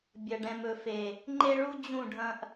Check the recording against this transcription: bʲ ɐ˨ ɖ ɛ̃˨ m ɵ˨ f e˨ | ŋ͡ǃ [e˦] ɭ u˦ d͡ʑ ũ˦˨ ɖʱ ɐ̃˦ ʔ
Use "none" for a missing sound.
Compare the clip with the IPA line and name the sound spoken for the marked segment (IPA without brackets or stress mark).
e˦